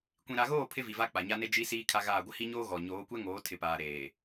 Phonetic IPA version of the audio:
kʷ ĩ˨ ɾ a˨ ɣ oː˦˨ pʰ ɪ˦ v i˨ v a˦ k͡p a˨ ɲ a˦ n e˦ d͡ʒ i˦ s iː˦ kʰ a˦ ɣ aː˦˨ ɡʷ ɪ˦ h i˦ ɲ oː˦ ɣ ɔ˨ ɲ oː˨˦ kʷ ɛ˦ ŋ oː˨˦ tʰ ɪ˨ p aː˨ ɾ eː˨

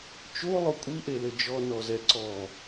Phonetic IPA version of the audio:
t͡ʃ o lˠ o kʷʼ i ʔ e l ɘ d͡ʒ ɔ n ɔ z ɛ ǀ ɔ

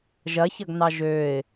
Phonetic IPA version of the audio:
ʒ ɐ ç ɐ ɡ n ɑ ʒ ø ɪ̯

